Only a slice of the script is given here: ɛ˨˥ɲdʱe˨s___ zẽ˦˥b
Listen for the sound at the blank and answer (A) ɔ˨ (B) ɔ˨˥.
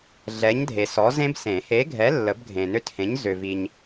B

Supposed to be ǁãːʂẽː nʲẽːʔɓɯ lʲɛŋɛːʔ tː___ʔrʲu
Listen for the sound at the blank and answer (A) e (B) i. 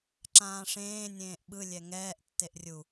A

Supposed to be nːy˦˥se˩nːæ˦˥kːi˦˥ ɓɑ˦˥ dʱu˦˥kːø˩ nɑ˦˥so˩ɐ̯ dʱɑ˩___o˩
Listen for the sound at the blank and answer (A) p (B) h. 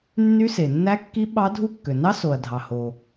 B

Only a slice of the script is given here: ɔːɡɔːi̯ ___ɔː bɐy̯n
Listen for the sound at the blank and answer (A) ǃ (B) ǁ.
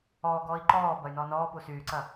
A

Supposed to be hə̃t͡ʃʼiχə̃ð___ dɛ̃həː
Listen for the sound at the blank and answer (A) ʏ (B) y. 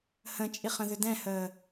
A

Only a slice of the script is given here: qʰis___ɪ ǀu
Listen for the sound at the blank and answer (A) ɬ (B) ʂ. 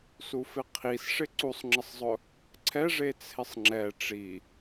B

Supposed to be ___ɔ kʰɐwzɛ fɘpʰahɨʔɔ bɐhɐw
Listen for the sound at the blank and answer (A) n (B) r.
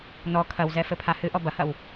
A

